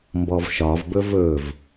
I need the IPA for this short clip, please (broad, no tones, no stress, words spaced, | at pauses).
mbɔvʃɒv bɵvɵv